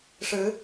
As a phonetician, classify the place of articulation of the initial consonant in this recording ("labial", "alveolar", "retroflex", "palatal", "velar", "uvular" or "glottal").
retroflex